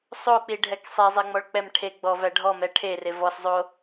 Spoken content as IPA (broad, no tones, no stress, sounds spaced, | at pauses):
sˤ o k͡p i ɖʱ ɛ k sˤ ɛ zˤ ɛ ŋ͡m ɔ ɭ k͡p ɛ m ʈʰ e ɡ͡b ɔ v æ ɖʱ ɔ m ɛ ʈʰ e r e v ɔ s zˤ o